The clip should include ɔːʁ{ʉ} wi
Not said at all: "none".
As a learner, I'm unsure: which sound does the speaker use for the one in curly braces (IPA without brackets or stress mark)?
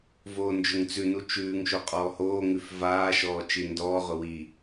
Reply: ʊ